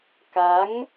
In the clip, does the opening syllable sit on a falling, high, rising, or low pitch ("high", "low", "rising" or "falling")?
rising